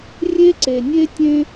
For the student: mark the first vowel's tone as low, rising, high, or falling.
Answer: high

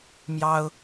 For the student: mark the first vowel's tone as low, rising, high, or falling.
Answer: high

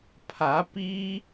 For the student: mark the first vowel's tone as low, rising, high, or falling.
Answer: rising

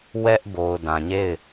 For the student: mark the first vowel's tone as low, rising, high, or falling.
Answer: high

